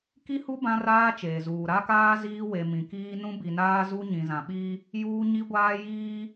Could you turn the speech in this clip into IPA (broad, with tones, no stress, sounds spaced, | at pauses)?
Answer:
k i˦ h u˦ b ã˦ r aː˦ t͡ʃ eː˨ z uː˨ ɾ a˦ k aː˦ z iː˦ w e˨ m ĩ˨ k iː˦ n ũ˦ b i˨ n aː˦ z u˦ ɲ ĩ˨ z ã˨ ɓ iː˦ | j uː˦ ɲ i˦ ɡʷ aː˦ j iː˦